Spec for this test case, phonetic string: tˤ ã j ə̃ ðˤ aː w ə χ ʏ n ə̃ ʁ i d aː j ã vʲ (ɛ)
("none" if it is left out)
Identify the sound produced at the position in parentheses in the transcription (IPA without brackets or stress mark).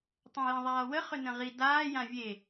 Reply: e